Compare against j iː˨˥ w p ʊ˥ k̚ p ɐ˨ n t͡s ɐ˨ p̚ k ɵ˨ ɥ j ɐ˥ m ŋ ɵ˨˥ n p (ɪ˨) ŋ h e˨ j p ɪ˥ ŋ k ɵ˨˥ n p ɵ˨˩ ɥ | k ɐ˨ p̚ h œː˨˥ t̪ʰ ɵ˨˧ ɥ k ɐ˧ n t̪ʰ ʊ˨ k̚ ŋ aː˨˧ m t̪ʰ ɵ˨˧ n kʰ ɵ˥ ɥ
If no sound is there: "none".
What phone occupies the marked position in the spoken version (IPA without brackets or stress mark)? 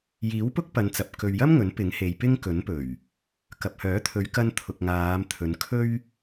ɪ˨˥